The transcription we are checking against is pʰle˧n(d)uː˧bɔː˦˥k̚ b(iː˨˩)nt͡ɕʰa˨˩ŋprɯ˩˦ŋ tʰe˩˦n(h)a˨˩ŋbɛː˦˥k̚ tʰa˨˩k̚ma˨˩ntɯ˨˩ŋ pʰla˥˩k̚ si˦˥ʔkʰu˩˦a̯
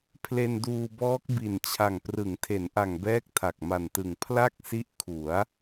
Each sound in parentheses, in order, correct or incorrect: correct, incorrect, incorrect

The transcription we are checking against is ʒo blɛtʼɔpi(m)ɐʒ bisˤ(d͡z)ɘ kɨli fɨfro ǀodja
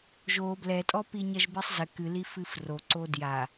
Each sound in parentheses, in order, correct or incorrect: incorrect, incorrect

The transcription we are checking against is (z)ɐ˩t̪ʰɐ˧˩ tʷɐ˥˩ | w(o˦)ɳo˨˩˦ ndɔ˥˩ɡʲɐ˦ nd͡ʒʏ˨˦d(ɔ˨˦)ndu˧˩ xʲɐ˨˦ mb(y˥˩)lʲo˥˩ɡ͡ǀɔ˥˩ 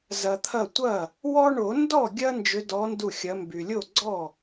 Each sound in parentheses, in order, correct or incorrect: correct, incorrect, correct, incorrect

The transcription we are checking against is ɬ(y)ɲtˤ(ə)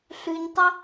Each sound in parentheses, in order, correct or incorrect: correct, correct

